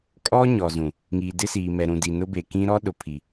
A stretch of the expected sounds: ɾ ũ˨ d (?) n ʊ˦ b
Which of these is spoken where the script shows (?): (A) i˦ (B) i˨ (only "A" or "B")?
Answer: B